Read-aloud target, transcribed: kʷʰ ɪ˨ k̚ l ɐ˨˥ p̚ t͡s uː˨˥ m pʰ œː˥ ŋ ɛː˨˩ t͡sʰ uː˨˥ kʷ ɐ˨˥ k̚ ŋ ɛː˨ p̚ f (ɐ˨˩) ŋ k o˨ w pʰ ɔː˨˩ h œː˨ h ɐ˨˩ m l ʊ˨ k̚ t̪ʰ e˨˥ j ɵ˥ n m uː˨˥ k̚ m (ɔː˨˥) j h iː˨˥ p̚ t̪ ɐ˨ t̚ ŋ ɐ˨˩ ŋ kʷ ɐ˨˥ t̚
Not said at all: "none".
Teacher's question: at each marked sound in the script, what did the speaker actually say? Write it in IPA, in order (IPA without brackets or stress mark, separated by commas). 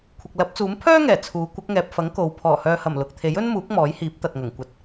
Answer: ɐ˨˥, ɔː˨˥